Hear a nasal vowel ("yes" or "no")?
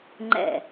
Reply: no